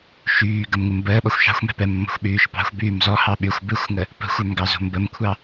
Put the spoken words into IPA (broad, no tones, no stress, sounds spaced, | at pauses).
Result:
ʃ yː ɡ ə m ŋ u m b əː ɓ ɔ xʷ ʃ ɑ̤ xʷ m ɛ̤ p ɛ mː ɔ̤ xʷ ɓ yː ʃ p ɑ̤ xʷ b yː m z ɔ h ɑ ɓ y xʷ b ɨ xʷ ŋ ə | p ə̤ xʷ œ m ɡ ɑ z o̤ m b ə m kʷʰ ɑ